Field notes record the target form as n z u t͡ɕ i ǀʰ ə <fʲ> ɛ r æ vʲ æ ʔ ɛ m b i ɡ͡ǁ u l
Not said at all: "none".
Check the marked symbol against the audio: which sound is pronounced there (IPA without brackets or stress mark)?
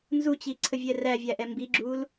vʲ